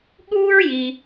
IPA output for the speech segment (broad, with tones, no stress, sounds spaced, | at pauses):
ɠ uː˥ ɹ j i˩